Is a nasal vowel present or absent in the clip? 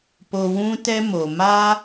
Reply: present